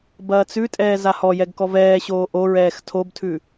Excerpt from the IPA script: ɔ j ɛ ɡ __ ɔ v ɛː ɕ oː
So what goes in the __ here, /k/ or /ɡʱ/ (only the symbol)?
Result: k